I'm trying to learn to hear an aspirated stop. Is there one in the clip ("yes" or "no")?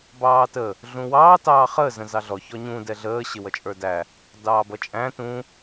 no